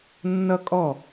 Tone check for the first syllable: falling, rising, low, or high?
high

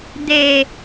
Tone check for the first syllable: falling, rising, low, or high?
low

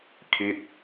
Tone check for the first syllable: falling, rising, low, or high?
falling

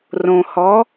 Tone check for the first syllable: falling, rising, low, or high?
low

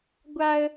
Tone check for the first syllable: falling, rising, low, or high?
high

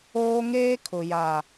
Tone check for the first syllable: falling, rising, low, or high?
high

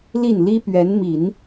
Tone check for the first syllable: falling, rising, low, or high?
falling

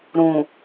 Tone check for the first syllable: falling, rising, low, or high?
low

